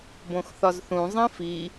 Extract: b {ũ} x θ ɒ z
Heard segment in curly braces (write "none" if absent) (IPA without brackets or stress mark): õ